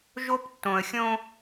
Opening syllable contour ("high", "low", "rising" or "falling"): high